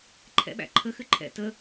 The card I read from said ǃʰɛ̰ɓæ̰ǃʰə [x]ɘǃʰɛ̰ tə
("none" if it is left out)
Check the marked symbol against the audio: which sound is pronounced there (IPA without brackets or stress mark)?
x